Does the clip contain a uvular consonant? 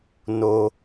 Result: no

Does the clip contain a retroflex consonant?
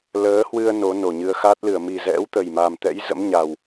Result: no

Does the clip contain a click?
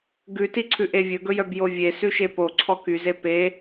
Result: yes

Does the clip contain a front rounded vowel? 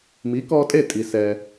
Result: no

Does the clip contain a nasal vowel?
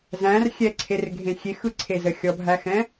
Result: yes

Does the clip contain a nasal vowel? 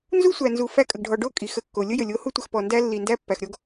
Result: no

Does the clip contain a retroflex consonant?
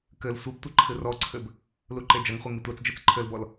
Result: no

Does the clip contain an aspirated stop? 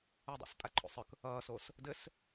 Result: yes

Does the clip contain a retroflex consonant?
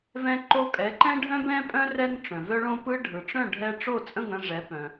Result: yes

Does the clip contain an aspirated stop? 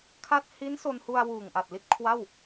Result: yes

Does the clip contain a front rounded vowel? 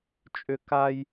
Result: yes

